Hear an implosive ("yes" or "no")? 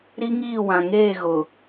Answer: no